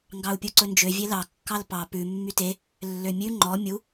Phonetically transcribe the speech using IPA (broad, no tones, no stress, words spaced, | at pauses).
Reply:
ŋɡɑu̯pʲuǀɵnd͡ʒø vʲelɑ kːɑlpɑ pʉ mːyte | lːømʲʉ ŋ͡ǃɔ mʲu